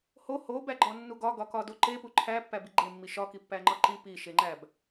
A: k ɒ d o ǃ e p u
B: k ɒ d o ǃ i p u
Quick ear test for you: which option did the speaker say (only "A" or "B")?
A